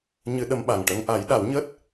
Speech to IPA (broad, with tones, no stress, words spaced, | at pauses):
ɲɨ˧ ɗə˧mɓa˨˩ŋ ʈə˧ŋʔa˨˩˦j ɗa˨˩˦wɲəː˦˥t̚